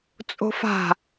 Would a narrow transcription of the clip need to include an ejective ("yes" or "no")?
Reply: yes